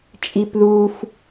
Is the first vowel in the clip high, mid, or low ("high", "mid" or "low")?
high